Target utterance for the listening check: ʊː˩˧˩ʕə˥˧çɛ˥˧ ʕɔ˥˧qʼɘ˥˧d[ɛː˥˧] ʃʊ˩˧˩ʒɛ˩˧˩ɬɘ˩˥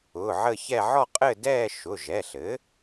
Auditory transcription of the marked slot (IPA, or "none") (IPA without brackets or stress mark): ɛː˥˧